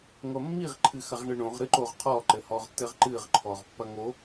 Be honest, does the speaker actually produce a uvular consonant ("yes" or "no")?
yes